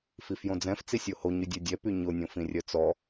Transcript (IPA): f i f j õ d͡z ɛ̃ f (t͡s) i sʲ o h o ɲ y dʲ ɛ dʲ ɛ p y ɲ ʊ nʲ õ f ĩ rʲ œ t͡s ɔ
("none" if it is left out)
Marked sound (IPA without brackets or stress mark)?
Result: t͡s